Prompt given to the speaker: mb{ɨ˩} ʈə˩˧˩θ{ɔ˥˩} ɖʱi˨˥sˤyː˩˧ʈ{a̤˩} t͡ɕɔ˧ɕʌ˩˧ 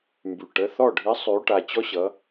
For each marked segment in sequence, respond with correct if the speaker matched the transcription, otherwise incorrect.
incorrect, correct, incorrect

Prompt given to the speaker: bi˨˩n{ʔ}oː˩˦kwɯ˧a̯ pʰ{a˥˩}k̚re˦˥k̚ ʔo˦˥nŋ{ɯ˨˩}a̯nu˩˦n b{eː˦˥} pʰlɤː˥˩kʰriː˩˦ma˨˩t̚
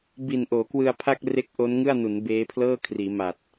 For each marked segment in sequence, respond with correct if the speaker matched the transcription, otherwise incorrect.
correct, correct, incorrect, correct

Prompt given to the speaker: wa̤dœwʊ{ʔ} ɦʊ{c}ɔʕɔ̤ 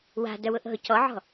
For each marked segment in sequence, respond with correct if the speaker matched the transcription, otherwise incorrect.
correct, correct

